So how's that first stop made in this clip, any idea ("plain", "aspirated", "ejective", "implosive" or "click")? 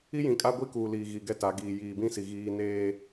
ejective